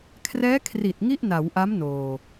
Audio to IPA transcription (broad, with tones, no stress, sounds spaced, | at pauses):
kʰ r ɛː˦˥ kʰ r i˨˩ t̚ ŋ i˥˩ ʔ n a˩˦ w ʔ a˦˥ m n oː˧